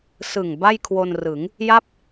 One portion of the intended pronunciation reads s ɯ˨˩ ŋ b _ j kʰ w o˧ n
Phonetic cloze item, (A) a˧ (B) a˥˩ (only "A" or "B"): B